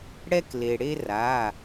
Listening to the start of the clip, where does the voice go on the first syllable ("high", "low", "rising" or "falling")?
high